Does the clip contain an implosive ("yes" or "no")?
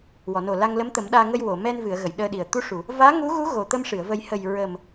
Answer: yes